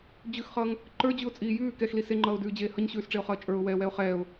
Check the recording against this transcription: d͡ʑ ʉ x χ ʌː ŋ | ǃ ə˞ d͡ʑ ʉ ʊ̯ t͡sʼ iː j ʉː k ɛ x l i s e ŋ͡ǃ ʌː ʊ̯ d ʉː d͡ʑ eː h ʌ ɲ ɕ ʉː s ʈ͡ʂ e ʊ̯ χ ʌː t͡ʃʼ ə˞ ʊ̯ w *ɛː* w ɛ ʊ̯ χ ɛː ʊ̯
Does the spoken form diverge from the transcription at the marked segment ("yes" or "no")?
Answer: no